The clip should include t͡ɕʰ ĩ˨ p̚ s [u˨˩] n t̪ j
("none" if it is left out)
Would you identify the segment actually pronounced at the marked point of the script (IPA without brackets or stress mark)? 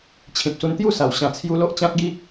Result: u˧